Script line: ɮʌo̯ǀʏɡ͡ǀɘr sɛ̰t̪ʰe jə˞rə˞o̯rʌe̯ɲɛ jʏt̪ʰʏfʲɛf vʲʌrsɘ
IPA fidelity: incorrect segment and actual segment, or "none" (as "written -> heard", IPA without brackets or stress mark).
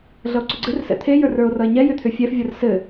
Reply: none